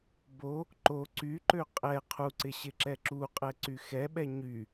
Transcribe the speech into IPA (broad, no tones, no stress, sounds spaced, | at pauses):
b o | ǃ o ǀ y ǃ ø qʼ ɛ qʰ u ǀ ɪ ɕ ɪ ǁ ɛ ǁ u qʼ ɛ ǀ y x ɛ ɓ ɛ ɲ y